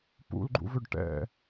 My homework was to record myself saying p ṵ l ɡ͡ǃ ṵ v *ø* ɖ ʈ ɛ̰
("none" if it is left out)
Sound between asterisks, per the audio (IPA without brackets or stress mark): ø